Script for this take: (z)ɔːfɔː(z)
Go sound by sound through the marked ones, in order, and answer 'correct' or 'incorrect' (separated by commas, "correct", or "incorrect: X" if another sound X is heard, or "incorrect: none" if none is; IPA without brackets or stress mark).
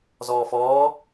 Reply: correct, incorrect: none